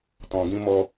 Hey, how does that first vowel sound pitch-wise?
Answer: low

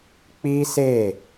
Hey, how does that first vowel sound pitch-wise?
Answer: high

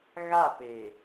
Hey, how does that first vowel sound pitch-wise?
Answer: falling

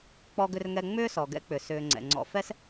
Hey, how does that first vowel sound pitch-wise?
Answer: high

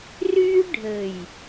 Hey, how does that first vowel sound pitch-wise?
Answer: high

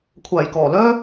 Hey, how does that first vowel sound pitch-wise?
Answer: low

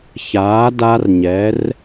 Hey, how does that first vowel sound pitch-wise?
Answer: rising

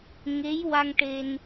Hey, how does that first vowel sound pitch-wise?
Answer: rising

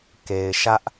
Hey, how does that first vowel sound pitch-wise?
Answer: low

